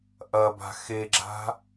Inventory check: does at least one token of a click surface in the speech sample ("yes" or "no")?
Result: yes